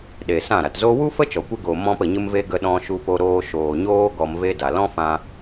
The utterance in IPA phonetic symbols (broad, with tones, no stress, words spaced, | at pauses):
ɗe˨sã˦˨ɾa˨t zo˧wu˦fə˦ t͡ʃɔ˨kʷe˦ ɡo˨ mɔ̃˦pə˨ɲɨ˦mve˦ ɡə˧ɗɔ̃˧ ʃu˧po˧ɾoː˧ ʃoː˨ɲoː˦ ɡɔ˧mve˦da˨ lɔ̃˦fã˧